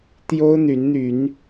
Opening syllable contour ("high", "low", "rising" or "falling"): high